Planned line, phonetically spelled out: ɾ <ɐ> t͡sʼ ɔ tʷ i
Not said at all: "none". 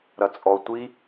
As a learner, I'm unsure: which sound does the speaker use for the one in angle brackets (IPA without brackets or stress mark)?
ɐ